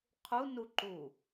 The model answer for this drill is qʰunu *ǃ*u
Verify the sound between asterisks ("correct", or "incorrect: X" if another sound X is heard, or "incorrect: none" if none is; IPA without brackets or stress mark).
correct